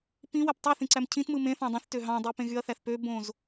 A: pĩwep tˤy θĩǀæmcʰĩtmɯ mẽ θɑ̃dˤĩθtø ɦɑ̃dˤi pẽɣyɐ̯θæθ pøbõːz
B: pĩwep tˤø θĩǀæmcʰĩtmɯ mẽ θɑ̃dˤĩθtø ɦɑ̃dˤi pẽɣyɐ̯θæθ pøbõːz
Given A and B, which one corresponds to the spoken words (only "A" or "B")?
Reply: A